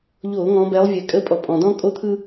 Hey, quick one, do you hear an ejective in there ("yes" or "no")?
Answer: yes